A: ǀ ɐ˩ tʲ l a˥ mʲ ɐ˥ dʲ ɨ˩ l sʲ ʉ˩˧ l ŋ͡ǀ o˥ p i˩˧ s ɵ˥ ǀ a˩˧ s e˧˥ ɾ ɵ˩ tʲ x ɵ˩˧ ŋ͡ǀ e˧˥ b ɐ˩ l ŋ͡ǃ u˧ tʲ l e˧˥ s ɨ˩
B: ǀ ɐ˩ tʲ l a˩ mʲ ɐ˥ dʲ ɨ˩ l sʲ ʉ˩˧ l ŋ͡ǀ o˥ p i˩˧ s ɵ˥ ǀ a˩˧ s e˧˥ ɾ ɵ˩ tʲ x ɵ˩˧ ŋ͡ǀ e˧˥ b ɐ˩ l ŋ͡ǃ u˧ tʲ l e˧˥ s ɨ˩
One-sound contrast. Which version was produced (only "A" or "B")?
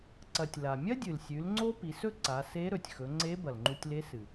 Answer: B